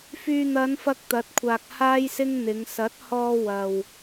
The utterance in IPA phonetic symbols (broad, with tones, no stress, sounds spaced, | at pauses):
f yː˨ n̪ ɐ˨˧ n f ɐ˧ k̚ t̪ ɐ˨˥ t̚ kʷʰ aː˨ k̚ h aː˥ j s ɪ˥ ŋ n̪ ɪ˨˧ ŋ s ɐ˨˥ t̚ h ɔː˧ w ɐ˨ w